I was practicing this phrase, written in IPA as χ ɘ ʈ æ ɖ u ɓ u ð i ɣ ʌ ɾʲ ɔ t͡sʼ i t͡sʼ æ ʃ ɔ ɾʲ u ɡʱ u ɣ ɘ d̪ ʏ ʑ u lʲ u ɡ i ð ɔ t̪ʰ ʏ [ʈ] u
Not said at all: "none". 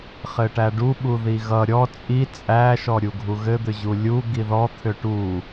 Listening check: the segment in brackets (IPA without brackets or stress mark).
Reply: ʈ